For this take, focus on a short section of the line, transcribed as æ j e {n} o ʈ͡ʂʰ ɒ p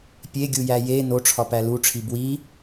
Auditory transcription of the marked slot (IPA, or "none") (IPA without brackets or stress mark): n